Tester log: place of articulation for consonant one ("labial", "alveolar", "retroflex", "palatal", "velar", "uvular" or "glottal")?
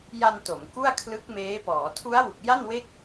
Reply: palatal